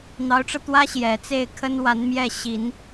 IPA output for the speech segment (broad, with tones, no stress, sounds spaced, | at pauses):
n̪ ɑ˧˥ ʊ̯ ʈ͡ʂ ɤ˧ t̪ w ä˥ ɕ j ɛ˨˩ t͡s e˥˩ ɪ̯ kʰ ə˥ n w a˧˥ n m j ɛ˥˩ ɕ i˨˩˦ n